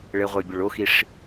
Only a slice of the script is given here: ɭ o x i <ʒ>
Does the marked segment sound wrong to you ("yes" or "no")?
yes